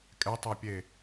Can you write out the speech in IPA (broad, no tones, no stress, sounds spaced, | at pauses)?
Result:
kʼ ɛ tˤ ɛ pʲ e